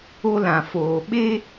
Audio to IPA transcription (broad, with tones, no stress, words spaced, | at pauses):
o˦lã˨foː˨ ɓe˦